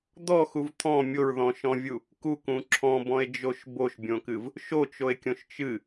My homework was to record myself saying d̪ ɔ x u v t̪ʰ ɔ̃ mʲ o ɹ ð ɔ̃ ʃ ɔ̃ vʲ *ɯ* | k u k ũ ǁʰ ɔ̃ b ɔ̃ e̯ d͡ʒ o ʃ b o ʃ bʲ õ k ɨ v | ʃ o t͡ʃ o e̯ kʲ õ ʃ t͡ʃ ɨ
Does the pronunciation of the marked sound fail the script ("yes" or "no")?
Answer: yes